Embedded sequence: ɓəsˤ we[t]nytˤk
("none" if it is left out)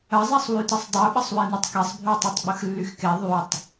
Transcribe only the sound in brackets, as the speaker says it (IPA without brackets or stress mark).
none